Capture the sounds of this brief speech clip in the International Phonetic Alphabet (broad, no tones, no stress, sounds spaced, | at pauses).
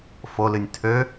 f o l ɨ nʲ tʰ ø